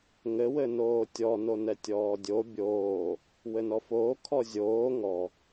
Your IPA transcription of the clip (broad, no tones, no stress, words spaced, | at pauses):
ŋɘwɘ noːtʲɔno nɛtʲɔːdʲo bʲoː | wɘnɔfoː kʰɔzʲoː ŋɔ